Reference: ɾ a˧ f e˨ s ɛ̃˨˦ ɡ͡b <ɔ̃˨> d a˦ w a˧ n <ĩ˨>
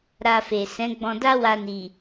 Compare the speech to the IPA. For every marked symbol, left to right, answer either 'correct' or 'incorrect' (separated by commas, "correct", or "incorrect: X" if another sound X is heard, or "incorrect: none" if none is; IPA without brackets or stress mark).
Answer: incorrect: ɔ̃˧, incorrect: i˨